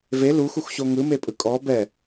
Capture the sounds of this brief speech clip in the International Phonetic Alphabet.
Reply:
v e l u x u x ɕ o ŋ ɯ m e pʼ ɯ kʼ ɔ b ɛ

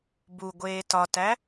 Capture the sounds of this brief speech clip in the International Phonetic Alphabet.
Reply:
b u ɡʷ eː t ɒ t æ

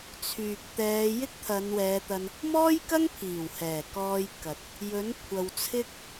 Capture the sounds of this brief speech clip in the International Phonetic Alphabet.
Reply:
t͡sʰ yː˨ k̚ t̪ ɛː˨˧ j ɪ˥ k̚ t̪ʰ ɐ˨˧ n w ɛː˨˧ t̪ ɐ˧ n | m ɔː˥ j k ɐ˥ ŋ pʰ iː˨˩ w h ɛː˨˩ k ɔː˧ j k ɐ˨ t̚ | j ɵ˨˥ n kʷʰ ɐ˨ w t͡sʰ ɪ˥ k̚

